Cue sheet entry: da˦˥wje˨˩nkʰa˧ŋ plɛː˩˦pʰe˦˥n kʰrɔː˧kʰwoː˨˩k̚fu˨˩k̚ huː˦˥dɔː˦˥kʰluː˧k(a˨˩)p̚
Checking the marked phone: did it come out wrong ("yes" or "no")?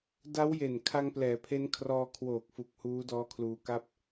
yes